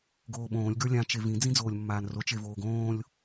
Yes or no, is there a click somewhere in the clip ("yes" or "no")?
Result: no